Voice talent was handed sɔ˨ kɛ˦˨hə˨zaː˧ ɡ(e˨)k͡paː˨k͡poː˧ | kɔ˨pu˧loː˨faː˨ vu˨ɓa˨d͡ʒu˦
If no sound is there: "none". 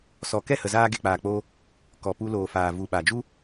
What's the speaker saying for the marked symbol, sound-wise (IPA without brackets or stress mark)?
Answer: e˨